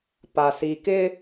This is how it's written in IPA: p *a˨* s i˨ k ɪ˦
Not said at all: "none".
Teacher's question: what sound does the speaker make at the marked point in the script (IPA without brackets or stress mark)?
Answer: a˨